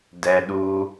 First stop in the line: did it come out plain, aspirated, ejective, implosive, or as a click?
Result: plain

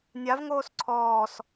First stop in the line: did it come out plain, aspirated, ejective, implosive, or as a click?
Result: click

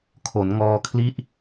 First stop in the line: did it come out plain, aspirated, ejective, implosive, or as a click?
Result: aspirated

